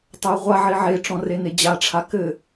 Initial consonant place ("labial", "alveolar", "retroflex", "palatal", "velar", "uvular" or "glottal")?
alveolar